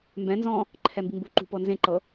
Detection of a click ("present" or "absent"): present